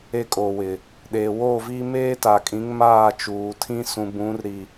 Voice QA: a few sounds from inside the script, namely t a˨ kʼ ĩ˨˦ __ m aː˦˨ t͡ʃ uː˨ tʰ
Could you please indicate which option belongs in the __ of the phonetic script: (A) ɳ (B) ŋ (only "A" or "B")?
B